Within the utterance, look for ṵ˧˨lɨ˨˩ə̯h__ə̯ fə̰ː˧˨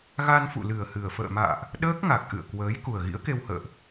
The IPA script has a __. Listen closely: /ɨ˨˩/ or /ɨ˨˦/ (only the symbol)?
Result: ɨ˨˩